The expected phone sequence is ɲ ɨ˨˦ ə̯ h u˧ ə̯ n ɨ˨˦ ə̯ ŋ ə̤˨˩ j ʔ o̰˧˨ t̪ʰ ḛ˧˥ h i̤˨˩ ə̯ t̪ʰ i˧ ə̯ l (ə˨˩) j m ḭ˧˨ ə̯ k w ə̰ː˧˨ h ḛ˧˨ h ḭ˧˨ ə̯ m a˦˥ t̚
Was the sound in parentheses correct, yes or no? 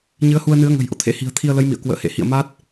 no